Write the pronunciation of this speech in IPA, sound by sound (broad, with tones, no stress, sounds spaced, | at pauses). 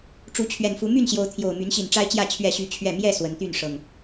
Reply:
ʈ͡ʂ u˨˦ t͡ɕʰ ɥ ɛ˨˩ n f u˨˦ m y˥˨ n ɕ j o˨˦ ʊ̯ t̪ʰ j o˨˩ ʊ̯ m y˨˦ n ɕ i˨˩ n ʈ͡ʂ a˦ ɪ̯ t͡ɕ j ä˥˨ t͡ɕʰ ɥ ɛ˥˨ ɕ y˦ t͡ɕʰ ɥ ɛ˥˨ m j ɛ˥˨ s w ə˨˦ n t̪ y˥˨ n ʂ ɤ˨˩ ŋ